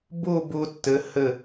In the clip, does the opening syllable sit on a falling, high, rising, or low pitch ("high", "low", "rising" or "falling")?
falling